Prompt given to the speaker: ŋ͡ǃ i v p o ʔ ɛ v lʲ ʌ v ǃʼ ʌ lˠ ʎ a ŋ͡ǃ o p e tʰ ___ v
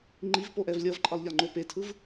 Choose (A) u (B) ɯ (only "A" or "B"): B